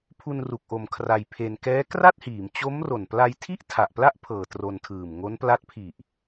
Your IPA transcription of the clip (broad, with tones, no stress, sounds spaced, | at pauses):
pʰ u˧ n r u˨˩ k̚ ʔ o˩˦ m kʰ r a˧ j pʰ e˧ n k ɛː˦˥ k r a˥˩ t̚ h iː˩˦ m t͡ɕ o˦˥ m r o˨˩ n p l a˧ j tʰ i˥˩ ʔ tʰ a˨˩ ʔ p l a˥˩ ʔ pʰ ɤː˨˩ t r o˧ n tʰ ɯː˨˩ m ŋ o˦˥ n p l a˦˥ t̚ pʰ i˨˩ ʔ